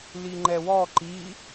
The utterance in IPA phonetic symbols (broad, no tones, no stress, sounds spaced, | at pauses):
l i ŋ͡ǃ ɛ w ɔ ǃ i